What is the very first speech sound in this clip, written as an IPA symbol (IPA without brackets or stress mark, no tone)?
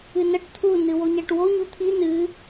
ɨ